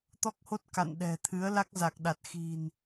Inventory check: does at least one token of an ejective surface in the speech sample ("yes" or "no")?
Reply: no